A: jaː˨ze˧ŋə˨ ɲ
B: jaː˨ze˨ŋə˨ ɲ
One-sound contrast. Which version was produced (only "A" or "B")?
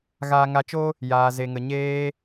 B